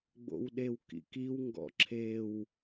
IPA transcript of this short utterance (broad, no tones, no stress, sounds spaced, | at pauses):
ɡ͡b o̰ w ɗ e w k ḭ k i w ŋ ɡ ɔ̰ ǁʰ e w